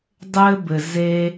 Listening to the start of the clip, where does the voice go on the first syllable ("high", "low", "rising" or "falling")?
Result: high